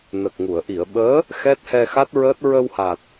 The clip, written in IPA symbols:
n ə˨˩ k̚ ŋ u˨˩˨ ə̯ ʔ i˨˩˨ ə̯ ɓ əː˧˥ | x ɛ˦˥ t̚ h ɛ˧ x a˦˥ t̚ ɹ əː˦˥ t̚ ɹ ə˧ w h a˨˩ t̚

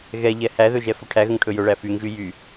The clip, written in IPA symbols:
ɣ ɛ ʎ ɛ h æ ð ɵ ʒ ɛ f ɵ ʈʰ æ ɣ ə ŋ ʈʰ ɵ j ɵ ɭ æ f y ŋ ʒ y j y

